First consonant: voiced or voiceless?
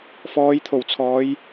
voiceless